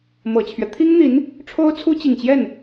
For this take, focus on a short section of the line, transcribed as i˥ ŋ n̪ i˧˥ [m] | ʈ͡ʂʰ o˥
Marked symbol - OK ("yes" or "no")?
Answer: no